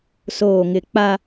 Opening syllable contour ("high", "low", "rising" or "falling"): low